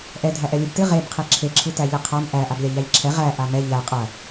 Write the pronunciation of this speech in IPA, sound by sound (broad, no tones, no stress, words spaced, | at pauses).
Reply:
ʔɛ dʱæʔɛlʲɨbtɨ ʁeb qʰeǁʰe ǁʰɨtæʎɨqʰam ʔæ ʔablʲaʎæʎǁʰɛ ʁæ ʔamɛ ʎæ qʼɐ